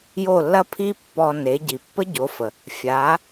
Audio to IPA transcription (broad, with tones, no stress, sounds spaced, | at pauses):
j o˥˩ lː ɐ˥ pʰ i˥ pː ɔ˧ n e˩˥ ɟ i˩ pː ə˥ ɟ o˩˥ f ə˩ | fʲ a˩˥